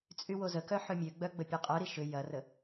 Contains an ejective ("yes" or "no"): yes